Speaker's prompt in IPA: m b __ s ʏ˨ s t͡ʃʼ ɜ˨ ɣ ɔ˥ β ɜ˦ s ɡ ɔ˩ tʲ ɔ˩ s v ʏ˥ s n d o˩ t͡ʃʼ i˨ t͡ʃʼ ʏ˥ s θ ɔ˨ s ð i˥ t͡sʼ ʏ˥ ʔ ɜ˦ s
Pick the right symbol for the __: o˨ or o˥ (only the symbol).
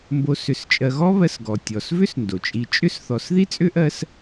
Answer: o˨